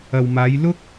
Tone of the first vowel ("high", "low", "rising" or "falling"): low